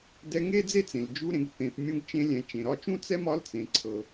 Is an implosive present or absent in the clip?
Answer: absent